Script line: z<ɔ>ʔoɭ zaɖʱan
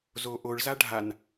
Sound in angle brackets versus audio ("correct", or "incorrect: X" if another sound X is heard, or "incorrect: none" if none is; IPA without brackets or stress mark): incorrect: o